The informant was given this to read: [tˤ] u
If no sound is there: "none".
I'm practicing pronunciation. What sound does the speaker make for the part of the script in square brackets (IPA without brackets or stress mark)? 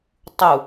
tˤ